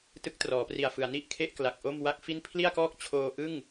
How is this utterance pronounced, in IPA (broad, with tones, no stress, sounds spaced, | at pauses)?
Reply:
t ɯ˦˥ k̚ t r ɔː˩˦ p r i˨˩ a̯ f ɯ˩˦ a̯ n i˥˩ ʔ kʰ e˥˩ ʔ k l a˨˩ k̚ ʔ o˥˩ m w a˥˩ k̚ f i˥˩ n pʰ l i˥˩ a̯ k ɔː˥˩ k̚ t͡ɕʰ oː˧ ʔ ɯ˥˩ ŋ